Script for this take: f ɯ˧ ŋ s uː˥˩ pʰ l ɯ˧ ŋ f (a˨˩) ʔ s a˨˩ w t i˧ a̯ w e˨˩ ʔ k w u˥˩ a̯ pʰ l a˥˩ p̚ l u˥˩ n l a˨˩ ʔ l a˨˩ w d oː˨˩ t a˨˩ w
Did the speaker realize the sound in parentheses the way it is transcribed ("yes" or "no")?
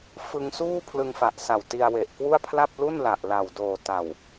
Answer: yes